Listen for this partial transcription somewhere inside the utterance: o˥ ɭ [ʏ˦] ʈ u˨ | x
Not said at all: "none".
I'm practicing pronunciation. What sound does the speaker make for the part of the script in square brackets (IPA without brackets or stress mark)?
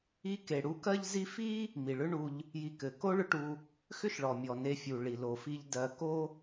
ʏ˦